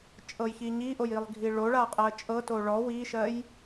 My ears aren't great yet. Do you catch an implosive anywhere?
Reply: no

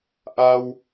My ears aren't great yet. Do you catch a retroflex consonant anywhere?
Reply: no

